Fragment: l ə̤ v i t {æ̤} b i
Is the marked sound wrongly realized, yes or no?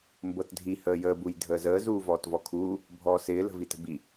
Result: yes